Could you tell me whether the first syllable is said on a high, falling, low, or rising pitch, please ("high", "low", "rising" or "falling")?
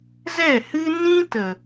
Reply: falling